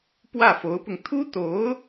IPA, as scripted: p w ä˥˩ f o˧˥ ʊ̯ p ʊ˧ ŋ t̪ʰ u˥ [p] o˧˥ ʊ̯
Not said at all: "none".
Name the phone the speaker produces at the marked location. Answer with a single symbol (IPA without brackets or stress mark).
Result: t̪